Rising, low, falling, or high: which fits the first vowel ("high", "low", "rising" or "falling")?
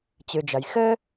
low